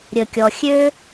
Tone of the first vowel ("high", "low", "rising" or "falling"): low